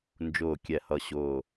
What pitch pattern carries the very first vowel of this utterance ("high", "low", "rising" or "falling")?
low